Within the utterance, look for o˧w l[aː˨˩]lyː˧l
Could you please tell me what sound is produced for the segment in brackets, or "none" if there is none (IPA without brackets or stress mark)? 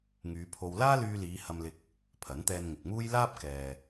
aː˥